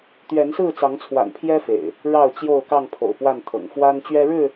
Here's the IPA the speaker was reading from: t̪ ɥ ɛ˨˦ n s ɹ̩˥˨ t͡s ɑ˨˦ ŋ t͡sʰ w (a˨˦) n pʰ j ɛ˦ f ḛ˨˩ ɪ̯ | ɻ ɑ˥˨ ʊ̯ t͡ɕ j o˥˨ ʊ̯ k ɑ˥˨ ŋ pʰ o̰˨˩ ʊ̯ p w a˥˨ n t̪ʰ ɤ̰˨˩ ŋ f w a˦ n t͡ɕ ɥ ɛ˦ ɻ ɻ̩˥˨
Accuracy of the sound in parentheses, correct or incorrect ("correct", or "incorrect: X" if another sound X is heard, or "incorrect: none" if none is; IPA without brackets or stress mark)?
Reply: incorrect: a̰˨˩